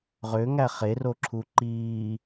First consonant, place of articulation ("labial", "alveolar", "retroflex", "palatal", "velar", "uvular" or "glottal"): uvular